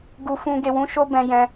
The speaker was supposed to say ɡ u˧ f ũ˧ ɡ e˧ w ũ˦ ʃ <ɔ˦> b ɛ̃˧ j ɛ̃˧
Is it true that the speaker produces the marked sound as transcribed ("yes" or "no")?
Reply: no